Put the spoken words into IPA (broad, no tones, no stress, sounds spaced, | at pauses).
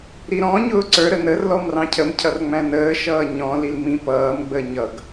ɾ i ɾ ɔ̃ ɲ ʊː ǀ ə˞ ɾ ə n ə r l ɔ m r ɑ̃ cʰ ə m cʰ ʌ r ŋ͡m æ̃ n əː ʃ ʌː ɲ ɔ̃ l i l m ĩ p ʌː m ɡ͡b əː ɲ ʌ ɡ